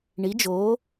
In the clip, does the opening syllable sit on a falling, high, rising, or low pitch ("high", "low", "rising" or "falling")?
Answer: rising